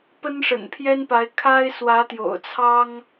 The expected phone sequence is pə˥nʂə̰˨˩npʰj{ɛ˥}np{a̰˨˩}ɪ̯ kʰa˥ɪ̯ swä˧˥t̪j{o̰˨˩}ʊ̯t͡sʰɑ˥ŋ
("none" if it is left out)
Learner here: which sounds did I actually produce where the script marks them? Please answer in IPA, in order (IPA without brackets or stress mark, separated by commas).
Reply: ɛ˥, a˧˥, o̰˨˩